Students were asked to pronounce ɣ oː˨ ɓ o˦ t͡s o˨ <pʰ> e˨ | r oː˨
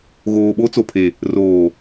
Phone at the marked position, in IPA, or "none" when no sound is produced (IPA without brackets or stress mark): pʰ